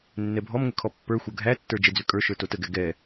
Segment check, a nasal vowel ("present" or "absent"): absent